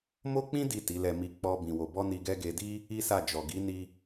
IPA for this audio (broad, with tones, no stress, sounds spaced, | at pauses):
m o˦ k͡p ĩ˦ d i˦˨ t i˨˦ l ɛ˧ m i˧ k͡p ɔ˧ b ĩ˨ w o˨ b ɔ˧ n i˧ ɡ ɛ˦ ɡ e˧ d i˦ | i˦ s a˦˨ d͡ʒ ɔ˨ ɡ i˨˦ n i˧